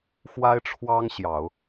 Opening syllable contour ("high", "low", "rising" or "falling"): high